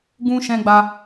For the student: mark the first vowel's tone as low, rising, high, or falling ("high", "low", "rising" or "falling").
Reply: high